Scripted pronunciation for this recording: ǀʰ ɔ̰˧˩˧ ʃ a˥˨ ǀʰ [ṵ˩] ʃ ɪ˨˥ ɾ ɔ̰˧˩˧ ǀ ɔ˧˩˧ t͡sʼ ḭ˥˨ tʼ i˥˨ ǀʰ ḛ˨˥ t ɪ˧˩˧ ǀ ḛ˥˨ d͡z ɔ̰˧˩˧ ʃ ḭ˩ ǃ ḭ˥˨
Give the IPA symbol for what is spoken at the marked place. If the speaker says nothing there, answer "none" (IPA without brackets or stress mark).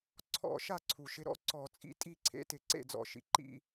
u˩